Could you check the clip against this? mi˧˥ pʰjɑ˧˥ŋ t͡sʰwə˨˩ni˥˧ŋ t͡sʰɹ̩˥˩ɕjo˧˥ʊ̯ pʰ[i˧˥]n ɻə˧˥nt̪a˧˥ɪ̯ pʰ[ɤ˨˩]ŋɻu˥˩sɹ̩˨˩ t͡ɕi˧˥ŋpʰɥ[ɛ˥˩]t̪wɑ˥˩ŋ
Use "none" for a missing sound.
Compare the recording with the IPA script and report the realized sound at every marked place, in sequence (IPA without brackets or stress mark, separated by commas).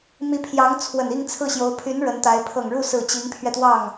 y˧˥, ɤ˨˩, ɛ˧